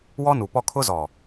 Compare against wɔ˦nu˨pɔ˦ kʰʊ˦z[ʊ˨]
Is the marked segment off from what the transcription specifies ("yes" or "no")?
yes